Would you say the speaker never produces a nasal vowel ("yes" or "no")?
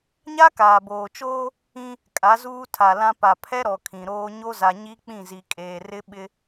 no